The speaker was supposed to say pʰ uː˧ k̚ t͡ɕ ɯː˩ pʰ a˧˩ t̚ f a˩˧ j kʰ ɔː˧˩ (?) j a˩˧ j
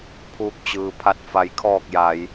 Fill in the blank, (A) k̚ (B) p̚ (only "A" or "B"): A